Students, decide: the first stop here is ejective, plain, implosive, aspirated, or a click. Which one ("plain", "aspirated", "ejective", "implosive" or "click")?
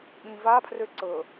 implosive